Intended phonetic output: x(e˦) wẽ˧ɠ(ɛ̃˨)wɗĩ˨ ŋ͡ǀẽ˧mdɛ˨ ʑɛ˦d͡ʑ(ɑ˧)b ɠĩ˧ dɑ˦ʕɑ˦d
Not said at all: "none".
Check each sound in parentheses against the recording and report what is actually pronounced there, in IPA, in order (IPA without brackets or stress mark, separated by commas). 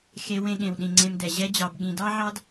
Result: e˦, ẽ˨, ɑ˧